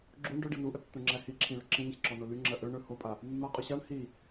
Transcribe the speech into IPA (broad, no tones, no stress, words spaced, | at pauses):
ɡ͡ǁuɳ ɖɵɖi nuʔətːũŋ͡ǁæ hiǁʰĩɭɵ ǁĩnəçǁɔno lyŋ͡ǁɜ ʔɵ ɳɵ hopʼa | mːaqʼɵ ɕaɳ hi